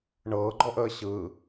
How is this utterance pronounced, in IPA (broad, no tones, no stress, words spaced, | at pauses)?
ɳɤːɡ͡ǃɔʔəː ɕɯ